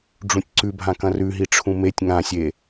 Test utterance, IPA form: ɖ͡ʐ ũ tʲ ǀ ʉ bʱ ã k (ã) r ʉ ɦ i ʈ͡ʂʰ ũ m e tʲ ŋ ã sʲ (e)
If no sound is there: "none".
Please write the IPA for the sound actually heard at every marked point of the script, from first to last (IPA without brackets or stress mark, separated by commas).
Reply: ɐ̃, e